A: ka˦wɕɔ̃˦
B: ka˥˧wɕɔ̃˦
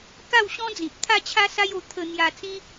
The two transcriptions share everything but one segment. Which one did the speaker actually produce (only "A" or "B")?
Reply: B